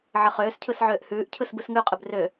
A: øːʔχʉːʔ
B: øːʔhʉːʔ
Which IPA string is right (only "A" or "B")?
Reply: B